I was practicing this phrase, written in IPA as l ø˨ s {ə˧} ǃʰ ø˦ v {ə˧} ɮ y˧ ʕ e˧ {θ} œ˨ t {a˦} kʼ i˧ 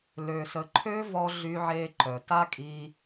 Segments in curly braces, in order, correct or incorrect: incorrect: ə˨, incorrect: ɔ˧, incorrect: ǃ, correct

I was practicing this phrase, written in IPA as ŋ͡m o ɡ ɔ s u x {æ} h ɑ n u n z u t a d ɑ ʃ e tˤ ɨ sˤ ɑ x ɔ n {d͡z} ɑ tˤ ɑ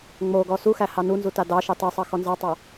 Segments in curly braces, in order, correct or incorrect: correct, incorrect: z

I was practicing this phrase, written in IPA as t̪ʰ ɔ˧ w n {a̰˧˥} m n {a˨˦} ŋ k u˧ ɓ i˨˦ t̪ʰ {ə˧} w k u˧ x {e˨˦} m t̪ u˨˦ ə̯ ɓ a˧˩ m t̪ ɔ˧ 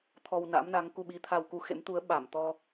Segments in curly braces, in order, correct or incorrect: correct, correct, incorrect: a˧, incorrect: ḛ˧˥

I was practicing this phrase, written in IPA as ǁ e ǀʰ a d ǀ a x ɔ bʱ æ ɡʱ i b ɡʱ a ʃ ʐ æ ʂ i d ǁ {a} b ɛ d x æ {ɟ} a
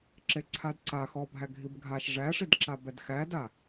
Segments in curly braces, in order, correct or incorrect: correct, incorrect: d

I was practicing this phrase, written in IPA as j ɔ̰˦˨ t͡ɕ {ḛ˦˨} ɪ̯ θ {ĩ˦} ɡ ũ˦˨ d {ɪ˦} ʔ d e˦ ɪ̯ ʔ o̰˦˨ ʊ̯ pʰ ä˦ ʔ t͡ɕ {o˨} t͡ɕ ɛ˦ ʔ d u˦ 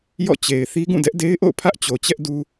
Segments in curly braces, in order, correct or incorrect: incorrect: e˨, incorrect: i˦, incorrect: ɛ˦, correct

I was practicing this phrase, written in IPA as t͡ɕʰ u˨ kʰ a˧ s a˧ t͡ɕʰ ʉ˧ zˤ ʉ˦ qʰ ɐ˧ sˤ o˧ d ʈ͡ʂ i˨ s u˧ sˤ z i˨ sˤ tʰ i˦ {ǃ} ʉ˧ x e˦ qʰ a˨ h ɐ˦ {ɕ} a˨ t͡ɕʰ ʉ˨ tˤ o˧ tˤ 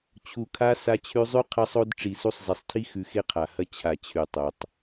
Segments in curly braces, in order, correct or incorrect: incorrect: x, incorrect: t͡ɕʰ

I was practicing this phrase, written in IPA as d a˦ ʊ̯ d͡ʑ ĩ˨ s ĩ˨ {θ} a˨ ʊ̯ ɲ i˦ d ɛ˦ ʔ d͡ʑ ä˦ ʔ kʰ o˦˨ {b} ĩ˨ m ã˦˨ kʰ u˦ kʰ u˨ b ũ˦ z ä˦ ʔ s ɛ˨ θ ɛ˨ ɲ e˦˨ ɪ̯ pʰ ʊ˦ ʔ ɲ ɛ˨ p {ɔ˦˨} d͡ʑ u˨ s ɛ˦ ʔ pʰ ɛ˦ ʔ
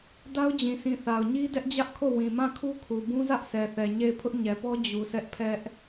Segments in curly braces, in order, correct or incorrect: correct, incorrect: w, incorrect: ɔ˦

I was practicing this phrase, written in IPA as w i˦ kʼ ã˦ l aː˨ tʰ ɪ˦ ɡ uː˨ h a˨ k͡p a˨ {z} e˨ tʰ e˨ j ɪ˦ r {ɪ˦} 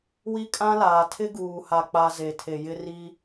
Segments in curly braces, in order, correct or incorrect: correct, incorrect: i˦

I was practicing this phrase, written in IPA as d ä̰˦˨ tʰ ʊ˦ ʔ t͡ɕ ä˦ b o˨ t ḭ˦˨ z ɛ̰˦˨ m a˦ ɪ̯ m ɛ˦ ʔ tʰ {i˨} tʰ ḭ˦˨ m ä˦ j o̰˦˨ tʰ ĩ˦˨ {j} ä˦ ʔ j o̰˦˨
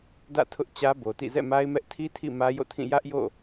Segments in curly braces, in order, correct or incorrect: incorrect: i˦, correct

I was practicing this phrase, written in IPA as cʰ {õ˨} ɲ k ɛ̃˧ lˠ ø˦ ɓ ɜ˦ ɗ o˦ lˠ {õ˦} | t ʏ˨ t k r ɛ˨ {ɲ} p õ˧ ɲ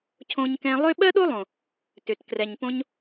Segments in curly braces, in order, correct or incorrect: incorrect: õ˧, incorrect: õ˨, correct

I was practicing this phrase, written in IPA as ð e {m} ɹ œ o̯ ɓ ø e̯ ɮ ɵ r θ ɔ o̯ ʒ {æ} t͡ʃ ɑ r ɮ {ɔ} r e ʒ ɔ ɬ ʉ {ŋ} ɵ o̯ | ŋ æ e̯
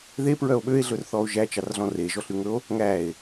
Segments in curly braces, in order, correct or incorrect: incorrect: p, correct, incorrect: ɔ̃, correct

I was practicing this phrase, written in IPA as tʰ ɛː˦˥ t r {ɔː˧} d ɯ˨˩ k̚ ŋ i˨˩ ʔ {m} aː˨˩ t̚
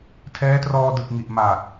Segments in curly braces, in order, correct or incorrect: correct, correct

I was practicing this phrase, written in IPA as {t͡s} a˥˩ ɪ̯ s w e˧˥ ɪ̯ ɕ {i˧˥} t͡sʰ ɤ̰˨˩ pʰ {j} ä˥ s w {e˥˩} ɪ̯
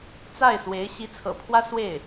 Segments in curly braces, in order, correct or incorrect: correct, correct, incorrect: w, correct

